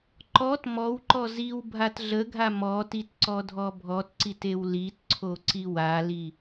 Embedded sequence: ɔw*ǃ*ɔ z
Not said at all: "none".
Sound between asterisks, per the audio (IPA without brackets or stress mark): ǃ